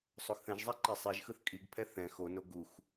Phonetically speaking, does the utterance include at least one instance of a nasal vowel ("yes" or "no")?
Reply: yes